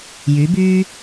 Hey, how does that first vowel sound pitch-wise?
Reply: rising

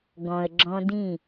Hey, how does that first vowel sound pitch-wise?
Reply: low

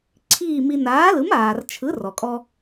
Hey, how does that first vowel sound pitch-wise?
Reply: falling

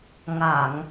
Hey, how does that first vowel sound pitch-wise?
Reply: low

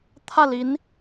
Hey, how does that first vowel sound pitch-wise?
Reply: falling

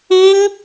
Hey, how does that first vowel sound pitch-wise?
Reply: high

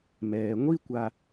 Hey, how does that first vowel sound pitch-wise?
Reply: low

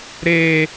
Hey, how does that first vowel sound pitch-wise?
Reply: high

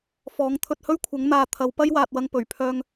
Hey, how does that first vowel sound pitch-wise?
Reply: rising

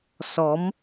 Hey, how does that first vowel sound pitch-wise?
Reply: rising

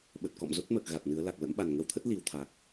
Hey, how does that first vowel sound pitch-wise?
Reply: low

